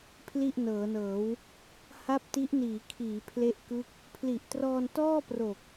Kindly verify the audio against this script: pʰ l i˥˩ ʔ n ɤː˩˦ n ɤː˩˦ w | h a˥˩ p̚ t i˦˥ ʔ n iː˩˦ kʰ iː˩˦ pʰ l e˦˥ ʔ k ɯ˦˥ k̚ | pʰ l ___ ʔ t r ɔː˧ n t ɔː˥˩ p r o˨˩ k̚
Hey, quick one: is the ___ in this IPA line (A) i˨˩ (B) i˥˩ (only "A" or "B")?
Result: A